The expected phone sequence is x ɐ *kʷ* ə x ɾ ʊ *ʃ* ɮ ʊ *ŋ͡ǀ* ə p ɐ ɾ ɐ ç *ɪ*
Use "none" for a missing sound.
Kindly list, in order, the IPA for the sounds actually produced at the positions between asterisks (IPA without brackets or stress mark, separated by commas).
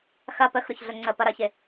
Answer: p, ç, ŋ͡ǀ, ɪ